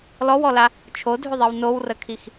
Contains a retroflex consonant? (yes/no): no